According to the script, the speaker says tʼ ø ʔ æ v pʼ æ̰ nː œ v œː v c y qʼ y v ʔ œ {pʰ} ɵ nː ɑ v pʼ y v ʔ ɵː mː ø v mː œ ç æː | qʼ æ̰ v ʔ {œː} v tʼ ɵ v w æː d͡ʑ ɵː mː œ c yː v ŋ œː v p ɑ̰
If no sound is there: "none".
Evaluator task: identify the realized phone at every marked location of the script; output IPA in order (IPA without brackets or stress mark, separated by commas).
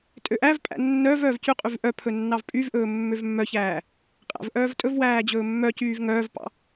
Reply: pʰ, œː